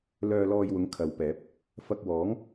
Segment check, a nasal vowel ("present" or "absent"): absent